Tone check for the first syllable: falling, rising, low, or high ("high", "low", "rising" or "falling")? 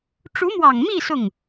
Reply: rising